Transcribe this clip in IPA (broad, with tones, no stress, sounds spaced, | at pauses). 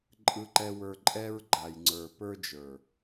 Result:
ǃʼ ɯ˧ ǃ ɛ˧ w ə˞˧ ǃʼ ɛ˧ ɹ ɡ͡ǃ a˨ j ŋ͡ǀ ə˞˨ p ə˞˧ d͡ʒ ə˞˨